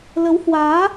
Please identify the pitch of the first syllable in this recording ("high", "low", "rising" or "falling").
rising